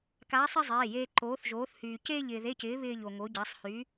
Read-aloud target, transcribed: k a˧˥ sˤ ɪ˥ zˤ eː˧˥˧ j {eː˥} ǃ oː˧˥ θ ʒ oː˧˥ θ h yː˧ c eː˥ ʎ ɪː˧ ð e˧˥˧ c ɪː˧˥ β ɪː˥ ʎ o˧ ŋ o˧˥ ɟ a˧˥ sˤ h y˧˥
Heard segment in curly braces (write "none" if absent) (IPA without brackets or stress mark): eː˥